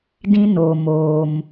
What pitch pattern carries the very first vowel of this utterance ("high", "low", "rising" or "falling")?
high